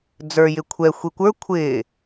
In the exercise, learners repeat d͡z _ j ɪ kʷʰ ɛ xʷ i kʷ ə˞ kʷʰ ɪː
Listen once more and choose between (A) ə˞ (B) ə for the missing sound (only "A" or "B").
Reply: A